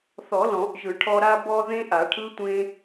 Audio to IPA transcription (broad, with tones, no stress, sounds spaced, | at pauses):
θ ɔ˨˩˦ l ɔ̃˨˩˦ ʔ ʒ ɯ˨˩˦ ʈʰ ɔ˧ ɾ a˧ b ɔ˧ ð ẽ˦˥ ʔ a˨˩˦ ʈʰ ɯ˦˥ tʷ ẽ˧